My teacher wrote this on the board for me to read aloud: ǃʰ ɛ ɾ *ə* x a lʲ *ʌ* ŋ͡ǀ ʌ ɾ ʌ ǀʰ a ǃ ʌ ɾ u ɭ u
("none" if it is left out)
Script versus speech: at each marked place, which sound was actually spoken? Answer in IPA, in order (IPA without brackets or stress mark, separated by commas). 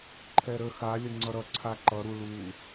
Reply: ə, ə